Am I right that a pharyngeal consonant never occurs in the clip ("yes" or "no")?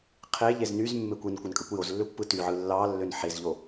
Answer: no